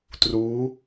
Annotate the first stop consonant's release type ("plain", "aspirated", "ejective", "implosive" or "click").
plain